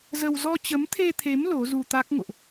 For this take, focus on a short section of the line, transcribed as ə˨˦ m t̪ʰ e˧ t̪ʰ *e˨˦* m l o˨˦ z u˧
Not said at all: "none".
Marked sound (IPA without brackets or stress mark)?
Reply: e˨˦